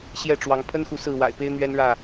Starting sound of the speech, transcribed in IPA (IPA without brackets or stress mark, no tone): ɕ